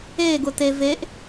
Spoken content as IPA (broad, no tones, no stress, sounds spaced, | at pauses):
e ɡ ʊ t e v e ʔ